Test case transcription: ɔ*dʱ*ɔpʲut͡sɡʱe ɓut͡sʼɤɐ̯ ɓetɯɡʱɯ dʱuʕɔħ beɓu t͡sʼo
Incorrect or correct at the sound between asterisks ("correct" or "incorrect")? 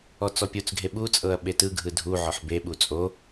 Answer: incorrect